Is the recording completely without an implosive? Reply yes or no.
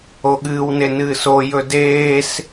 no